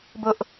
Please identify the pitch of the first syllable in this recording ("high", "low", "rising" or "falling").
high